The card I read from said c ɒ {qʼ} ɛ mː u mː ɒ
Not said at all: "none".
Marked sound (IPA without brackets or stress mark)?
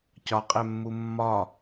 qʼ